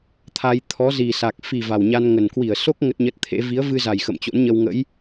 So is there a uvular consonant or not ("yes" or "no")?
no